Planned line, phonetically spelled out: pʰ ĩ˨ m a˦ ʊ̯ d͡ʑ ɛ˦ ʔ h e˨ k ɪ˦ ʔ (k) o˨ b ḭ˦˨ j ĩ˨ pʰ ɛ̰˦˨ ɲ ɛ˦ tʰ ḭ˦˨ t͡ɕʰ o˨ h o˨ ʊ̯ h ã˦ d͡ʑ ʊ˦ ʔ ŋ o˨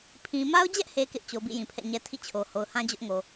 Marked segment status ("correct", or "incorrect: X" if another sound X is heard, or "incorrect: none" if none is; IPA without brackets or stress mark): incorrect: t͡ɕ